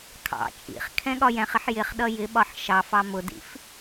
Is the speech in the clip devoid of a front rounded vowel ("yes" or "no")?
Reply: yes